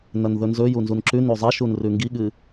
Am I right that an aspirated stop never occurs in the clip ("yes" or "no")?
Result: yes